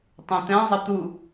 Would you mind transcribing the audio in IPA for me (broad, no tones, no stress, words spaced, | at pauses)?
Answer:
tˤũt̪ɛ̃ zˤət̪u